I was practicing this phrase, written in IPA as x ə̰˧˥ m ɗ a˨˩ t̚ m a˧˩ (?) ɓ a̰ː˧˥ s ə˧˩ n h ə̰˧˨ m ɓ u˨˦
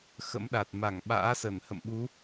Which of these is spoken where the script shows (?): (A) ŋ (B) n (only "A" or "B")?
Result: A